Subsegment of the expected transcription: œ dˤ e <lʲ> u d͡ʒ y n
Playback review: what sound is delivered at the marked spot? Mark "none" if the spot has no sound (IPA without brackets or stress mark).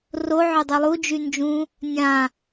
lˠ